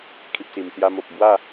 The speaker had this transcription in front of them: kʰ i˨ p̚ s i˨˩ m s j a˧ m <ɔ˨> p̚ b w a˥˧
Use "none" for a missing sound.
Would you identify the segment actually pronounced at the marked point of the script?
o˨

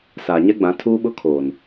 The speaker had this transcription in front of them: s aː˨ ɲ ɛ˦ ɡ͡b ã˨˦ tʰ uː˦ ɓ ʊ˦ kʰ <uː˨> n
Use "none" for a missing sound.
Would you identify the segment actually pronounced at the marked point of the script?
oː˨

